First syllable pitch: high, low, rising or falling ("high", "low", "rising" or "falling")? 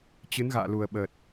rising